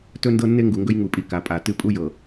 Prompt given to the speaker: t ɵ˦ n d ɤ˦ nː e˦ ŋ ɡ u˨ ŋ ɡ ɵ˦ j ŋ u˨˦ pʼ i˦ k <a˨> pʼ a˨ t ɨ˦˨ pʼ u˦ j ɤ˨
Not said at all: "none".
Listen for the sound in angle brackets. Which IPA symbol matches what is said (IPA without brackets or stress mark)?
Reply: a˨